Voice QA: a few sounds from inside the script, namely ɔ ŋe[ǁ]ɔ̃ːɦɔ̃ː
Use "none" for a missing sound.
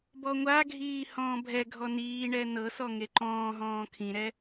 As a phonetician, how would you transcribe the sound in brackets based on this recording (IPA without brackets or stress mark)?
ǃ